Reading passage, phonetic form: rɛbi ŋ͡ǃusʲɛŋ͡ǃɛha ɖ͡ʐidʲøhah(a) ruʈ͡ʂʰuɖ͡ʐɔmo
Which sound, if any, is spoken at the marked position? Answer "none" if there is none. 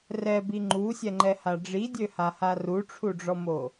a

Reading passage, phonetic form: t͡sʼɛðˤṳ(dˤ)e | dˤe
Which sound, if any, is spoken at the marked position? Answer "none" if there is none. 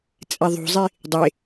zˤ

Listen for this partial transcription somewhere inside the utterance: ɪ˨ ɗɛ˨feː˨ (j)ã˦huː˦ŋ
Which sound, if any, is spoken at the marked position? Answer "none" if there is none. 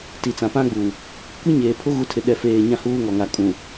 ɲ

